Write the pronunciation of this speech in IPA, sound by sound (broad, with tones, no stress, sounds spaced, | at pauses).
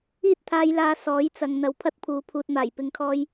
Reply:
iː˥ t̚ t̪ʰ aː˧ j l aː˧ s ɔː˨˥ j t͡s ɐ˨ ŋ n̪ ɐ˨˧ w pʰ ɐ˥ t̚ pʰ uː˨˧ pʰ uː˧ t̚ m aː˨˩ j p ɪ˨˧ ŋ kʰ ɔː˧ j